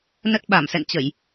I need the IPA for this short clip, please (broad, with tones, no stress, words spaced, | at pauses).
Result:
nə˦˥t̚ɓa˧˩m sɛ̰˧˨nt͡ɕə˧˩˨j